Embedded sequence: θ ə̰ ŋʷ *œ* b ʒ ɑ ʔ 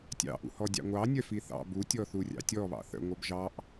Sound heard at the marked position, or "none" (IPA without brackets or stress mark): œ